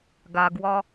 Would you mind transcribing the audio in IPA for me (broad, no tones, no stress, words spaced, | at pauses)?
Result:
ɡaɡwɒ